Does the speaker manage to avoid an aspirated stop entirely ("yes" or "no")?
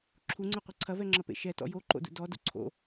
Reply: no